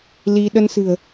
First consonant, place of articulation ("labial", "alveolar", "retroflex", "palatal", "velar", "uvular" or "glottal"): alveolar